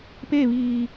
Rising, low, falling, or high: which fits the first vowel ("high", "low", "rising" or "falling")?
falling